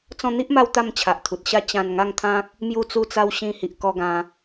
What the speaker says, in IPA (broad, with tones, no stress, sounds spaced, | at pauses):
t͡s ɔ̃˧ n̪ i˦ ʔ m a˧ w t̪ a˥˧ m t͡ɕʰ a˨ ʔ t̪ʰ u˨ t̚ ɕ a˥˧ t͡ɕ ã˧ n ŋ a˥˧ ŋ t̪ʰ ã˦ k̚ | m j u˧ t͡s u˧ t͡s a˧ w ɕ ĩ˧ h i˨ ʔ k ɔ˧ ɡ ã˧